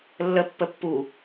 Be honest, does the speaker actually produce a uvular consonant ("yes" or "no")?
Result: no